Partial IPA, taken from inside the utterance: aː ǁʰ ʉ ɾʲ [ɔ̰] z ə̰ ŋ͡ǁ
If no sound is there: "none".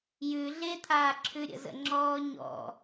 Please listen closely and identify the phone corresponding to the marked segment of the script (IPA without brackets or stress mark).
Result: ə̰